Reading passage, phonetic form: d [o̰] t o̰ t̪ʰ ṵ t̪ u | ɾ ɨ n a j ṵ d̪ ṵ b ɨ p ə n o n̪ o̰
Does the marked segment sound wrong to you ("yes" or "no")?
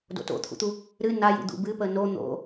no